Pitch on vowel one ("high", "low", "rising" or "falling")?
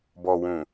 low